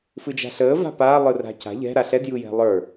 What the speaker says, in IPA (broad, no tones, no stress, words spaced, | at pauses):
fɯd͡ʒa̤ɬəː va̤paː lˠɯra̤ca̤ ʎɛ̤ɾa ɬɛdjɯjɛ̤ lˠə˞